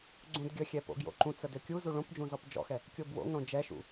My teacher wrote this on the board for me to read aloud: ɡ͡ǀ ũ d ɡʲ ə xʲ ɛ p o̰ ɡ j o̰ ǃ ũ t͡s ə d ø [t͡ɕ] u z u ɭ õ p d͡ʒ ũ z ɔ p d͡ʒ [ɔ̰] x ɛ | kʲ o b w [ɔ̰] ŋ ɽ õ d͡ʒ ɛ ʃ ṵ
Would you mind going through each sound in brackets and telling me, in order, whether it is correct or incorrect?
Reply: incorrect: kʲ, correct, incorrect: o̰

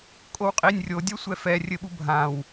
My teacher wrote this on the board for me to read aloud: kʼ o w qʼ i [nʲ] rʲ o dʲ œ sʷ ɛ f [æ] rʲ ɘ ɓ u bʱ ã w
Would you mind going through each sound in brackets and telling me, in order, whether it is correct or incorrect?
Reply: correct, incorrect: ɛ

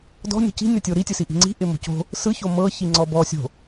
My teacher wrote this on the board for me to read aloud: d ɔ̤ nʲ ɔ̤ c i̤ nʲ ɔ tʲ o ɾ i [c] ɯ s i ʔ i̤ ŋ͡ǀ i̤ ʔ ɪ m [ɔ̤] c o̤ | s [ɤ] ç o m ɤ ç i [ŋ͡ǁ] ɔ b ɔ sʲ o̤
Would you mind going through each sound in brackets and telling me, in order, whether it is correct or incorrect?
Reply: incorrect: tʲ, incorrect: o̤, incorrect: ɯ, incorrect: ŋ͡ǀ

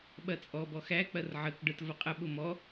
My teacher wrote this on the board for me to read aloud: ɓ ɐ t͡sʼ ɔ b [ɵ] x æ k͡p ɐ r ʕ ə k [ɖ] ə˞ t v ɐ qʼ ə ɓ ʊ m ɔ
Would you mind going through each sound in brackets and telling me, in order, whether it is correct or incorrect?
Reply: incorrect: ɔ, correct

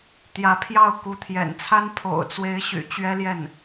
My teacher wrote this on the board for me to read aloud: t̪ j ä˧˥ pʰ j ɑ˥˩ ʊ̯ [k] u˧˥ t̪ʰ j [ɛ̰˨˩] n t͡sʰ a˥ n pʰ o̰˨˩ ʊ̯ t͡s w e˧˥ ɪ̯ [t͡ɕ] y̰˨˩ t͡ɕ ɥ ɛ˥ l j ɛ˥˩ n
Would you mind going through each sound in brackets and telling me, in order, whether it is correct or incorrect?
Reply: correct, correct, incorrect: ɕ

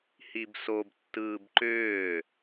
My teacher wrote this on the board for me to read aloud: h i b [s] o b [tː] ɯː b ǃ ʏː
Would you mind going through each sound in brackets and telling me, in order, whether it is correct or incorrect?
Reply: correct, correct

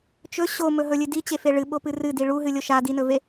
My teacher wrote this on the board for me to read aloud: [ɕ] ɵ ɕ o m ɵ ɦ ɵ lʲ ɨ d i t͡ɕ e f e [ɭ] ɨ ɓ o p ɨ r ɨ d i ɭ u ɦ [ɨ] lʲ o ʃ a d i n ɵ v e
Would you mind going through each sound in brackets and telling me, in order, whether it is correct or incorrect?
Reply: incorrect: t͡ʃ, correct, correct

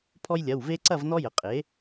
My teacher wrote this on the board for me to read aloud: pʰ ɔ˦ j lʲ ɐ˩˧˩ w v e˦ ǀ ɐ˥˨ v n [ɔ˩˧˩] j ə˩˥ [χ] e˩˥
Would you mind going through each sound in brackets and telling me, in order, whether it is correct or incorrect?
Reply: incorrect: ɔ˦, incorrect: qʼ

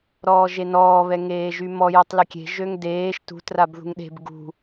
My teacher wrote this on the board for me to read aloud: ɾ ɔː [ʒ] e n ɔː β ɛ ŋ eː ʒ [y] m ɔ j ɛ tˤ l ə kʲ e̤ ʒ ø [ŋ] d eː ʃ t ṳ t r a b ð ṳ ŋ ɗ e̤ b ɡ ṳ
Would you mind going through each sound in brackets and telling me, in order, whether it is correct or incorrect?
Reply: correct, correct, correct

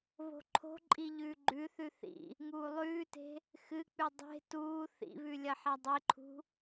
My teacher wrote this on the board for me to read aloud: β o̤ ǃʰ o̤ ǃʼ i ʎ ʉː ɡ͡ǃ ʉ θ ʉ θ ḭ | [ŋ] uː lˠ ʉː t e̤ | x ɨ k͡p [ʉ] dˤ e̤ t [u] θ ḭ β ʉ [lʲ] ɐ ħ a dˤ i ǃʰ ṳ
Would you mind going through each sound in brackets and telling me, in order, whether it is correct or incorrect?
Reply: correct, correct, incorrect: uː, correct

